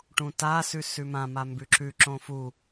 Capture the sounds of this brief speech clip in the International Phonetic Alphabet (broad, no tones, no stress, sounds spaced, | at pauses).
ʈ ũ t a s ʉ s ʉ m ã m a m b ʉ ǁ ʉ ǁ õ f u